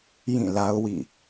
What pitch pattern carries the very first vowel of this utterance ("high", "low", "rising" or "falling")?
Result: falling